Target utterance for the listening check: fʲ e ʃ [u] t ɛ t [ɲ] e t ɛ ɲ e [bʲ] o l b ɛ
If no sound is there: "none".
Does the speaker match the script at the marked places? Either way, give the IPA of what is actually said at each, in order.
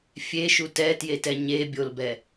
u, j, bʲ

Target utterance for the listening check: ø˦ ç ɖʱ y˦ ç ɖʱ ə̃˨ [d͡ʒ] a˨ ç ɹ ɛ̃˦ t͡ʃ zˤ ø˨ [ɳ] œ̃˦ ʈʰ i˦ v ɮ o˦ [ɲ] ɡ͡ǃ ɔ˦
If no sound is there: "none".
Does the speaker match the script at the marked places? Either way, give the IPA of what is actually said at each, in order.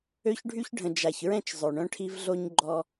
d͡ʒ, ɳ, ɲ

